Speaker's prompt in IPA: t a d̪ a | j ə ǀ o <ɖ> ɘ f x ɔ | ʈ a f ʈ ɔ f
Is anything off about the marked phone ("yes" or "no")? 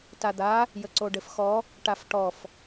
no